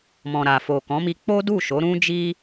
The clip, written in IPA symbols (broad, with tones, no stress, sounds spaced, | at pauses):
m ɔ̃˨ ɾ a˨ f o˨ k ɔ̃˨˦ m i˧ k͡p o˦ d u˦˨ ʃ o˨˦ ɾ ũ˦ d͡ʒ i˦